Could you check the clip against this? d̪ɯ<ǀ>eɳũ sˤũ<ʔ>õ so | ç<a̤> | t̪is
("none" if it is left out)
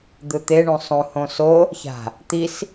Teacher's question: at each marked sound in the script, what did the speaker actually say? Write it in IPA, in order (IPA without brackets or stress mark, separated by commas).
t̪, h, a̤